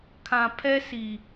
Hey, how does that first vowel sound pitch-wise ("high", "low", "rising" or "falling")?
low